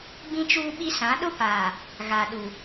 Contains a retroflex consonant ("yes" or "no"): no